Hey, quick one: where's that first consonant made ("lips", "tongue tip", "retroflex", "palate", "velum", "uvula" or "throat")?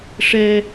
retroflex